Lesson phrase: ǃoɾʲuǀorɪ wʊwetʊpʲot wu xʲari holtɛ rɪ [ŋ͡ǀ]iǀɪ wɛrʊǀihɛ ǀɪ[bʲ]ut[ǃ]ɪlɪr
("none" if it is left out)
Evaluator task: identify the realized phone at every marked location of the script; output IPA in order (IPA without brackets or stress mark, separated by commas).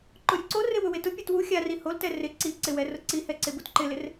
ǀ, b, ǃ